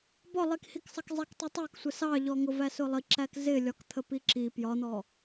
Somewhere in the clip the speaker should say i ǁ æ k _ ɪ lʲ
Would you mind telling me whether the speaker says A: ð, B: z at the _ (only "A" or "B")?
B